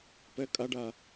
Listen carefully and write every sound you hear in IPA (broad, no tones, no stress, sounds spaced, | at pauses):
p ɘ kʼ ɐ ɖ ɐ